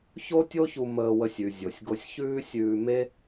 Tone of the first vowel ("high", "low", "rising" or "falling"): high